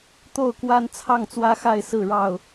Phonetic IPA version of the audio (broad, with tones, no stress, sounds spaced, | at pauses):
t̪ o˥˨ ʊ̯ k w a˦ n t͡sʰ ɑ˥˨ ŋ t͡s w ä˦ x a˥˨ ɪ̯ s ɹ̩˥˨ ɻ ɑ˥˨ ʊ̯